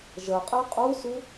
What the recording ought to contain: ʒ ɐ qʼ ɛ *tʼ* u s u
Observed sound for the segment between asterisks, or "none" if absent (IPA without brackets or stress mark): qʼ